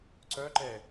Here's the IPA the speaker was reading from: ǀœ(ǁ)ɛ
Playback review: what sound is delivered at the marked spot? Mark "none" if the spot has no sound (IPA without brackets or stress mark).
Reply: ǃ